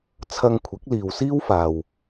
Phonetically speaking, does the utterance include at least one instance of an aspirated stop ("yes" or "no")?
yes